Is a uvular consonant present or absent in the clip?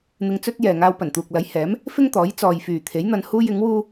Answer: absent